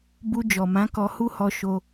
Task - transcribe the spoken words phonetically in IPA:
b u˧ d͡ʒ ɔ˨ m ã˨˦ k ɔ˧ h u˦ h ɔ˧ ʃ o˧

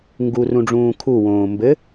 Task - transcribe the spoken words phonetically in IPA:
ŋ ɡ u r ũ ɖ͡ʐ ũː kʰ u w õː m b ɘ

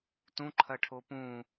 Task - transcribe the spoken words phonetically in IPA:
t ũ ǃʰ ɐ ʈʰ o p ũ

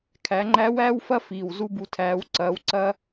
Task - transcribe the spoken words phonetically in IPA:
kʰ æ˩˧ ŋ͡ǃ æ˧˥ w æː˥ w f ɐ˥ f iː˩ w z u˥ b u˧ tʰ æː˧˥ w ǀ ɐː˧˥ w ǀ ɐː˥

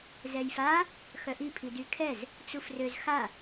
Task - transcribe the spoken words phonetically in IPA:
z ɛ j f a | x œ ʔ i pʰ i d y kʰ ɛ z | t͡s u f r ø z x a

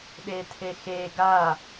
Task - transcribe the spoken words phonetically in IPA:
ɗ e tʰ e x e ɡ a

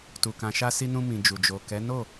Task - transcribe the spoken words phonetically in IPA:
t u˨ k ã˨ ʃ a˧ s i˧ n ũ˧ m ĩ˨ d͡ʒ u˨ d͡ʒ o˨ k ɛ˨˦ n o˦˨

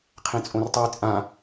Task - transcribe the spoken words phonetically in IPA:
qʰ ẽ t͡sʼ õ r tˤ o j t͡sʼ ã

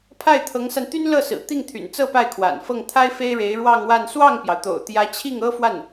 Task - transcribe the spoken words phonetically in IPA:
pʰ a˥˩ ɪ̯ t̪ʰ ɤ˧˥ ŋ s a˧ n t̪ y˥ n l ɤ˥˩ s ɹ̩˨˩ t̪ i˥˩ ŋ t̪ʰ y̰˨˩ n t͡s ɤ˥˧ p a˥˩ ɪ̯ kʰ w a̰˨˩ n f ɤ˥˩ ŋ t̪ʰ a˥ ɪ̯ f e˥ ɪ̯ ɻ e˧˥ ɪ̯ ɻ w ɑ˥˧ ŋ w a˥˧ n s w ɑ˥˩ ŋ p j ɑ˩ ʊ̯ t̪ o̰˨˩ ʊ̯ t̪ j ä˧˥ t͡ɕʰ i˥˩ ŋ ɤ˥ f w a˥˩ n

